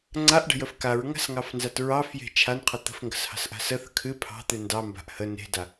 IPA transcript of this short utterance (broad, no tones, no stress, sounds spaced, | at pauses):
ŋ͡ǀ a ʔ ɖ ə̤ j ə f k a ɹ ŋ a̤ s ŋ ɑ f n z a t ɹ ɑ f j e̤ t͡ʃʰ a n qʰ ə t̪ ə̤ f ŋ ɡ ə̤ s h ɑ̤ s ʔ a̤ s ə θ ə̤ kʰ ɨ pʰ ɑ̤ t̪ ɨ n d ɑ m b a̤ ʔ h ə n e̤ d a